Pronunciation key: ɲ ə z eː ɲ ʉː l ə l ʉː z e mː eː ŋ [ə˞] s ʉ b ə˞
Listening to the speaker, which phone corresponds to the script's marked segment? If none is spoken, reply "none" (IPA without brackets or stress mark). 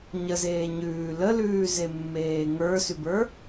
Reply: ə˞